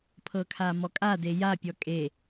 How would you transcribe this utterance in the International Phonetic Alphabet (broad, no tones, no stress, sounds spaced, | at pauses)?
pʰ ɤ kʰ a m ɔ kʼ a d e j a pʲ ɔ kʼ e